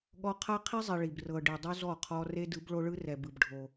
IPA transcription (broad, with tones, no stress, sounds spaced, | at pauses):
ɠ ɔ˦ qʰ a˦ qʰ i˦ zˤ i˨ ɭ i˨ b r ɤ˨ ɖ i˨ dˤ u˦ z ɔ˦˨ qʰ ɔ˦ r e˦ d ɯ˨˦ b ɭ o˦ ɭ ɯ˦ r ɛ˨ b ɯ˨ b ɖʱ o˦